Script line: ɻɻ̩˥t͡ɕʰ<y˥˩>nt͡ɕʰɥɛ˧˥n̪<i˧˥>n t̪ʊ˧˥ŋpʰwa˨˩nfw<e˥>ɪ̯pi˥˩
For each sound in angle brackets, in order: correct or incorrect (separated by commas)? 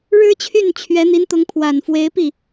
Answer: correct, correct, incorrect